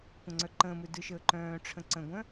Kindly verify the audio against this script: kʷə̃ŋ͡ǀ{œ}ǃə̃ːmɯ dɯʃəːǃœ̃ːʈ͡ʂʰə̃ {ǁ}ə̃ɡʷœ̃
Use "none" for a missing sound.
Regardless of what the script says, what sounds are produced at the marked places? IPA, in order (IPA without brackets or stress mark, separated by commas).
œ, ǀ